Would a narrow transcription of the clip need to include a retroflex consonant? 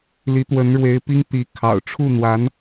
yes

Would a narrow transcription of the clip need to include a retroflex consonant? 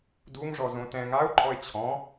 yes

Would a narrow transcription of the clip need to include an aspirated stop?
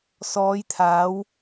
yes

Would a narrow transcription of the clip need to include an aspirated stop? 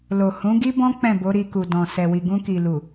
no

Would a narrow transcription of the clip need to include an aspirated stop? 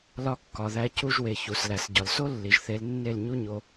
no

